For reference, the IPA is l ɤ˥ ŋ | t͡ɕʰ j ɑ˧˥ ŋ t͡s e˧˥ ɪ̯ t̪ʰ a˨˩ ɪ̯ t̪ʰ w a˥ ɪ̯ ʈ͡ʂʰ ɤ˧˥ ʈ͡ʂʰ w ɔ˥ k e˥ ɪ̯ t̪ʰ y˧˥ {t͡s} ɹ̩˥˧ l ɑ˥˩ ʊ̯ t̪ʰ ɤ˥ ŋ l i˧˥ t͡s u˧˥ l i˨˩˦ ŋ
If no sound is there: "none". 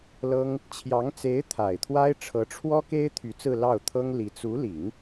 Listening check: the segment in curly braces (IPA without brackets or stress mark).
t͡s